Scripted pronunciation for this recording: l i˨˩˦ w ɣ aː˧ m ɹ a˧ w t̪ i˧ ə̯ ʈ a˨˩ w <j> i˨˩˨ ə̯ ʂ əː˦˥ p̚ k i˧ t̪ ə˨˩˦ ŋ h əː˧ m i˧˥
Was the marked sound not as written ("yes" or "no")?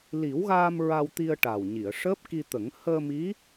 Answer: yes